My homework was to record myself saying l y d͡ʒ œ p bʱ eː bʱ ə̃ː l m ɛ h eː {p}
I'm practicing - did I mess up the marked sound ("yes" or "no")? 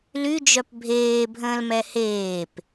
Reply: no